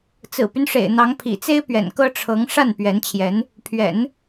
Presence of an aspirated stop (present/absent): present